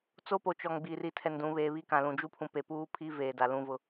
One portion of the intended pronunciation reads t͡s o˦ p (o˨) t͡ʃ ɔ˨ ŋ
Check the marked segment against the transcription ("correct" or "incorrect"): correct